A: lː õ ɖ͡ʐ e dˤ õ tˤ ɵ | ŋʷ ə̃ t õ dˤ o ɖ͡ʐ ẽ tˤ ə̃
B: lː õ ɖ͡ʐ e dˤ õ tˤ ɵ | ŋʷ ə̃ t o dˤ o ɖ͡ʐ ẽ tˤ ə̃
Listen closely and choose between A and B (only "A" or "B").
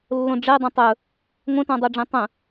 A